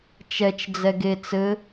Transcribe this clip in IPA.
t͡ʃ ɛ t͡ʃ d͡z ɛ ɡ e t͡s ɘ

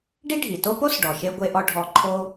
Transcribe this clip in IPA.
ɖ i˥ ɖʱ i˩ t o˥ p o˥ s ɖ ɔ˩ ʃ e˧ ɡʷ e˧ ʔ ɔ˧ ɖʱ ɔ˧ ǃʰ o˥

